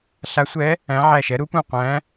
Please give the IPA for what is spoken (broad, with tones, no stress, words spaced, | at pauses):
ɬa˧˥sʷɛ˧˥ | æ̃˧˥ʕæ˦˨ʃɛ˧˥ ɾu˧˥pũ˦˨qʷæ̃˧˥